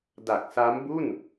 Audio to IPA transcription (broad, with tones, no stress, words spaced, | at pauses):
da˨˩k̚sa˦˥mbu˥˩n